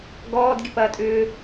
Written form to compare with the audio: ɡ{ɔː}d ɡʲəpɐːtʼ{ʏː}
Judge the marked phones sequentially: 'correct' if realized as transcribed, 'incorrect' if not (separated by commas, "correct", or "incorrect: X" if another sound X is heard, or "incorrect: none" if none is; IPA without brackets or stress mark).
correct, correct